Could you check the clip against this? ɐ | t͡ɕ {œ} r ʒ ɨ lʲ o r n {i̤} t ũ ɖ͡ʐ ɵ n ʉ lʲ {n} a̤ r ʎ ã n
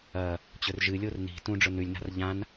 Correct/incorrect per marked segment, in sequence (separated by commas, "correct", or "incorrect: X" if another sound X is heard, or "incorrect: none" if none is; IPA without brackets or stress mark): incorrect: ɵ, correct, correct